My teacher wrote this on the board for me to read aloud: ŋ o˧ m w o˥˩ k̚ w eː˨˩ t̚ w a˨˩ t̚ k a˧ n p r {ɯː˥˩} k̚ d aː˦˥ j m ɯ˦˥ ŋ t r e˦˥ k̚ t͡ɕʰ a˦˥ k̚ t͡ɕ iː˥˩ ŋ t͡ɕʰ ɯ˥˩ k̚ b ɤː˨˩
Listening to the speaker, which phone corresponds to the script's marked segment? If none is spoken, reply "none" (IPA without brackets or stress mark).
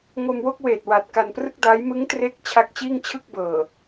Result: ɯ˥˩